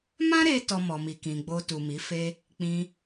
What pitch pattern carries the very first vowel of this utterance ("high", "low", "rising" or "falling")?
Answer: high